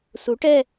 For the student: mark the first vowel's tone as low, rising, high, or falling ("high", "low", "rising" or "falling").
rising